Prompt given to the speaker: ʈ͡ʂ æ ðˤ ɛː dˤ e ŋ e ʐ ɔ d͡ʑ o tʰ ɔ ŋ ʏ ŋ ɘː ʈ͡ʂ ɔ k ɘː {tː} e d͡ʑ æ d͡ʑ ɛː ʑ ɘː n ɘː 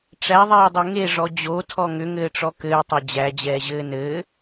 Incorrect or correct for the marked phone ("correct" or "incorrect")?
incorrect